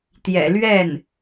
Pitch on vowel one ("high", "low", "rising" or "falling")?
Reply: low